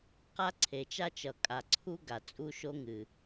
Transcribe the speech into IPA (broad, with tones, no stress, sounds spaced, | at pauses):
q a˥ ǀʰ e˩ t͡ʃ a˥ t͡ʃ ʌ˩ kʼ a˩ ǀʰ u˥ ɡ a˩ t͡sʼ u˥ ʃ o˥ ŋ ɨ˩